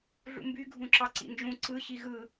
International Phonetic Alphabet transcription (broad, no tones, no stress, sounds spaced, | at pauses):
ɮ ṵ m b y ɡʱ ũ ǁ ɑ ǀ ḭ n d͡ʒ ũ ǀ ɯ ɕ i ɣ ɯ